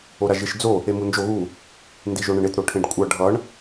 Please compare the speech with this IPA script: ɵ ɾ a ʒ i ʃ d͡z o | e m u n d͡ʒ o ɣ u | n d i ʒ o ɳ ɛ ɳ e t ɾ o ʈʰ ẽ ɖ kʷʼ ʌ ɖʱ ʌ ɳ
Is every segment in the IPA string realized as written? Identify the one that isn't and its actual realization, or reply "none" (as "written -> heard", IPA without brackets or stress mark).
ɵ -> o